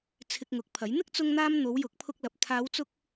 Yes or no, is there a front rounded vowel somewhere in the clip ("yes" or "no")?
no